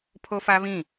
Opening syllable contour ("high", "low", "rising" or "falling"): high